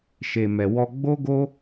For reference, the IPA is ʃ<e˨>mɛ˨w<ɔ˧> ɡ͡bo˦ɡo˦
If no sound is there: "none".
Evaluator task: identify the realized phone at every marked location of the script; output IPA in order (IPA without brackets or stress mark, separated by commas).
e˨, ɔ˧